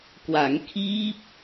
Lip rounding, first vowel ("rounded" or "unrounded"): unrounded